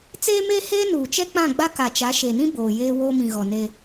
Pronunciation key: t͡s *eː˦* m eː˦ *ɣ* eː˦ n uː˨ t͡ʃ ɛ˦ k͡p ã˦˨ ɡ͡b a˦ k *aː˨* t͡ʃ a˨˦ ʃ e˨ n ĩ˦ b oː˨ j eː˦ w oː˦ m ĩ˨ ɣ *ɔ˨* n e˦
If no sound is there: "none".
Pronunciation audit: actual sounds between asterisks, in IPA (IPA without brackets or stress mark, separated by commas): eː˦, h, a˨, ɔ˨